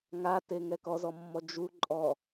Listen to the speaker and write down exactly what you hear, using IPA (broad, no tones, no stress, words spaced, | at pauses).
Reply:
ŋate ŋɛkɔzɔmːɔ d͡ʒu ǃʼɔ